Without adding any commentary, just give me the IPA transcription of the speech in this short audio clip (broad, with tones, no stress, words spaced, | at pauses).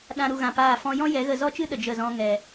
ɗã˧ ɾu˨ɣã˨ paː˦˨fɔ̃˦ jɔ̃˦ jɛ˨˦ɣə˧zɔ˦t͡ʃɨ˦ ɗə˨d͡ʒə˦˨ zɔ̃˦ ŋɛ˧